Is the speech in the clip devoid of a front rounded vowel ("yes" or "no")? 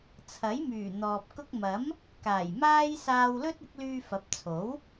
no